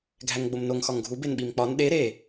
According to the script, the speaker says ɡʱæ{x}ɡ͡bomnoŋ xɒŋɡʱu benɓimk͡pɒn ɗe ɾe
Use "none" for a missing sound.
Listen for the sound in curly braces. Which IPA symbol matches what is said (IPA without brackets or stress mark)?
ŋ